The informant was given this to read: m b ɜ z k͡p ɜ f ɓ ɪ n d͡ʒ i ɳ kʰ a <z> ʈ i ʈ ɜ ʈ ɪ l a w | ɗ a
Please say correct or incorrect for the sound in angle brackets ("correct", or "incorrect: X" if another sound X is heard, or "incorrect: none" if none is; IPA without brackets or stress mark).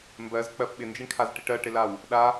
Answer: correct